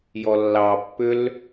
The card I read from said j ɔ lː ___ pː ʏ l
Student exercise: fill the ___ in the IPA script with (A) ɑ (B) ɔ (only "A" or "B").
A